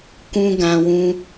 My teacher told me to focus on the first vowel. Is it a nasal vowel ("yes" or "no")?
yes